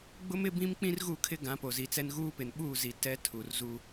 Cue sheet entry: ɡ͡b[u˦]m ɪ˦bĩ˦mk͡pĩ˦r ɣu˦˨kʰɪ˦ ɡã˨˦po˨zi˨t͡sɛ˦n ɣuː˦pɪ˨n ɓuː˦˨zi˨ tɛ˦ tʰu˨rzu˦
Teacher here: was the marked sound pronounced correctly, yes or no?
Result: no